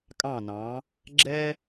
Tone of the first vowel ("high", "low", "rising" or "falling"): falling